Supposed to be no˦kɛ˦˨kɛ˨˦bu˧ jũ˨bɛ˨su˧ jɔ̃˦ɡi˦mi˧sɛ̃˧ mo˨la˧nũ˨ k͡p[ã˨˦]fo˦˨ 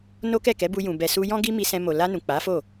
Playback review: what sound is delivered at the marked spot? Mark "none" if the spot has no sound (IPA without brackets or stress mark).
a˨˦